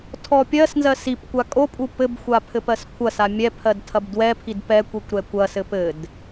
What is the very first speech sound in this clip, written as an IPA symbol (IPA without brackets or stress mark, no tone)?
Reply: tʰ